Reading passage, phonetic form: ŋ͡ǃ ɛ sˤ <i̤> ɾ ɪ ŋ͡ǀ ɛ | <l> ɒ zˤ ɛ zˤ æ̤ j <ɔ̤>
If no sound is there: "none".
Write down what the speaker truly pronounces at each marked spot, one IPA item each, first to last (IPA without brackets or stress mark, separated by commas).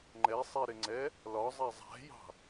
i, l, ɑ̤